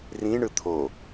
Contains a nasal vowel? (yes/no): yes